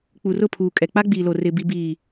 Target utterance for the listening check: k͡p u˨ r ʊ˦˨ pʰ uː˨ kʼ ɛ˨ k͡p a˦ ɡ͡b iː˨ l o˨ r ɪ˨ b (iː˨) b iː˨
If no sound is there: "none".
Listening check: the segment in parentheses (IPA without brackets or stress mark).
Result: i˨